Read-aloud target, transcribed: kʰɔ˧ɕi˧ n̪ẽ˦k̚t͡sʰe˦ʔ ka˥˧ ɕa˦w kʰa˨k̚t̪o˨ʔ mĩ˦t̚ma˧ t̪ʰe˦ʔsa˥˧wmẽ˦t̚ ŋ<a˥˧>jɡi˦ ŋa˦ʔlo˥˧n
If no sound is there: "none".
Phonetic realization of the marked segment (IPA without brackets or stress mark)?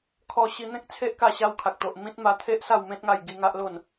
a˥˧